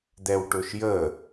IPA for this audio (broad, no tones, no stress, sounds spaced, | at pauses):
d̪ ɛ w ʈ ʊ ʃ j ə